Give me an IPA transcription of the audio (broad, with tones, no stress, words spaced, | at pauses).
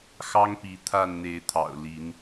xɑ˦ŋpi˨˦ t̪ʰa˥˨nn̪e˨˦ɪ̯t̪ʰɑ̰˨˩ʊ̯ li˨˦n